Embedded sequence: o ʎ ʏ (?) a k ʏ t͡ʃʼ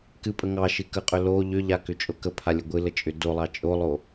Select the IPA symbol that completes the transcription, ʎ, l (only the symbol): ʎ